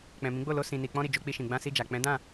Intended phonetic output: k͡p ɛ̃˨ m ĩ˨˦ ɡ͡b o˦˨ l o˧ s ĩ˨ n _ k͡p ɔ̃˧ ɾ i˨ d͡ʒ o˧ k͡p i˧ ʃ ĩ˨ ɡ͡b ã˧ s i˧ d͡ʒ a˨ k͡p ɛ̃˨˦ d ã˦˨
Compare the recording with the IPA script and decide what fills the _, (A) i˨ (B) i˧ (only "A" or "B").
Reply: A